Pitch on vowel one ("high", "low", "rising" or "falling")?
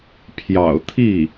low